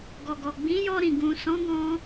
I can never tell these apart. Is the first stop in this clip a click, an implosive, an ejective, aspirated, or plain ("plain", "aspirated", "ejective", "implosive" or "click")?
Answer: plain